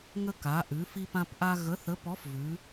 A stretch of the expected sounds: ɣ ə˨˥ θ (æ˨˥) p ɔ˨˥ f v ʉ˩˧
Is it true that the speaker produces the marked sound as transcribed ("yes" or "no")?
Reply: no